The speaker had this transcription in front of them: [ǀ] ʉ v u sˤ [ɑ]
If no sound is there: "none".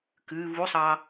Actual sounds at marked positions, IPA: k, ɑ

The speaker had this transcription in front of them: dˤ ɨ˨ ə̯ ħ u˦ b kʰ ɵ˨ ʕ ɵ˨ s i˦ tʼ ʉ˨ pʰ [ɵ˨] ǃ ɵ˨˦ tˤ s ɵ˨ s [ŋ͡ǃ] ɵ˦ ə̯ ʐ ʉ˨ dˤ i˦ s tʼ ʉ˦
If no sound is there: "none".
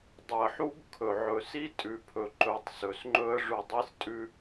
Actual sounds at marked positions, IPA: ɵ˨, ŋ͡ǃ

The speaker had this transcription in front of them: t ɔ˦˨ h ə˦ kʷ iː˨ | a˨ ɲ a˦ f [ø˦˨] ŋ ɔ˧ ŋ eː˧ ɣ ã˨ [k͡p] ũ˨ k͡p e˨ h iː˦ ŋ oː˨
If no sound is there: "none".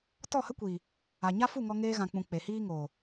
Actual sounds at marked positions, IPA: u˦˨, k͡p

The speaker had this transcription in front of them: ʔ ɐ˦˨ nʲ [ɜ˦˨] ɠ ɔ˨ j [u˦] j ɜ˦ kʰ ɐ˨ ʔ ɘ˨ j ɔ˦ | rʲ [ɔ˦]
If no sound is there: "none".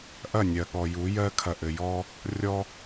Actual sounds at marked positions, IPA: ɜ˨, u˨˦, ɔ˦

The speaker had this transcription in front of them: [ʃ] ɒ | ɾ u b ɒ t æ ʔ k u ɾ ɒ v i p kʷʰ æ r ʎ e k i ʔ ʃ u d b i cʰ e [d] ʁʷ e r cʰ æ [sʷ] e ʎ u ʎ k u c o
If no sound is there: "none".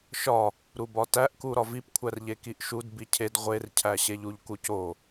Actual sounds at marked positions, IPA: ʃ, d, ɕ

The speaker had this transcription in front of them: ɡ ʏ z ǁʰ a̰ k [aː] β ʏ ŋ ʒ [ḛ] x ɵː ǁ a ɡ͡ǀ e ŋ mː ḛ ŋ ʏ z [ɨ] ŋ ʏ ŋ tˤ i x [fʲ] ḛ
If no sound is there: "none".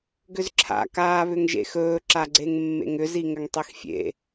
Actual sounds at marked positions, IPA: aː, ḛ, i, fʲ

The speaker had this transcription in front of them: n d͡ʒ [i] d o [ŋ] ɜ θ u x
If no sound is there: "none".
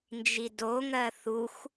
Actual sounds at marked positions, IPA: i, ŋ

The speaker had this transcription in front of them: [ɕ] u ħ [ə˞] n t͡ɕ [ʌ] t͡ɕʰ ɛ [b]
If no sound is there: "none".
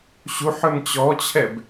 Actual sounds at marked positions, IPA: ɕ, ə˞, ɔ, b

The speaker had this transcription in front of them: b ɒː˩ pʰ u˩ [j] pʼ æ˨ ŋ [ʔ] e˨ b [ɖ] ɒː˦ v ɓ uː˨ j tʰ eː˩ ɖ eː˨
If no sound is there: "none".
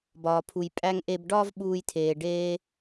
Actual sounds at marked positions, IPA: j, ʔ, ɖ

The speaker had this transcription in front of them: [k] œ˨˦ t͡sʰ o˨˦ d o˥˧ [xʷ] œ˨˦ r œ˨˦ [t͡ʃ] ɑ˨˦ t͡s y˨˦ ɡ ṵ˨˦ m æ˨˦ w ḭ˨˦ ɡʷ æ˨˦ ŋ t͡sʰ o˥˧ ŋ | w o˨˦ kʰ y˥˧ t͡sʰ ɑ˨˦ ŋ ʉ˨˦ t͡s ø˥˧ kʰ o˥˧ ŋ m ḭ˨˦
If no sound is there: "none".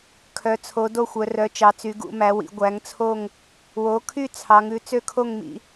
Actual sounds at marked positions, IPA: kʰ, xʷ, t͡ʃ

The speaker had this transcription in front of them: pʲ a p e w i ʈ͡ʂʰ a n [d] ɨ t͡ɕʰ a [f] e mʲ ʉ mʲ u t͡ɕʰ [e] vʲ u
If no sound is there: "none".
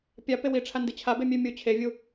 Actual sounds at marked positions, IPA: d, b, e

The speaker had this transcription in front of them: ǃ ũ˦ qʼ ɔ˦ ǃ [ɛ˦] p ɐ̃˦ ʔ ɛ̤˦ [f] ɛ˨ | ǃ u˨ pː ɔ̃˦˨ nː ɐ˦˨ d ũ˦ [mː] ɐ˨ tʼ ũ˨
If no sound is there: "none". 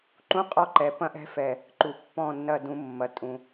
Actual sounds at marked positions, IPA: ɛ˨, f, mː

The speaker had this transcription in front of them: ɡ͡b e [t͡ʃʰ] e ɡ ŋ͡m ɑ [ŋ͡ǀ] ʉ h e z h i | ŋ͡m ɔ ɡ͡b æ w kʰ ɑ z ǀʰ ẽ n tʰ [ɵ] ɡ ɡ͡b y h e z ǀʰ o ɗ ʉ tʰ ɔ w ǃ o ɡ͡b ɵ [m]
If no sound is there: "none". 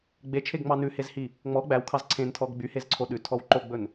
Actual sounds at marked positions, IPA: t͡ʃʰ, n, ɔ, n

